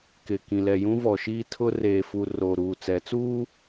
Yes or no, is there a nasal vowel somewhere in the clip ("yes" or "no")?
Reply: yes